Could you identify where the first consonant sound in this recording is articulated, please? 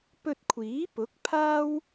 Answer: labial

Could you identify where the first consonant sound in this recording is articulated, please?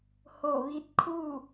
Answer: glottal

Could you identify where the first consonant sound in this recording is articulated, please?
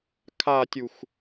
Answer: velar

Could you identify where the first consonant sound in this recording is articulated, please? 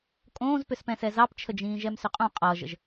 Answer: velar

